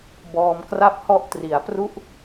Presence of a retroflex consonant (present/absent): absent